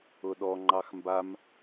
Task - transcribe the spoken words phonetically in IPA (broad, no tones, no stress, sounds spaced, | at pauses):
ʊ ɗ ɔ ŋ͡ǃ ɑ x m b a m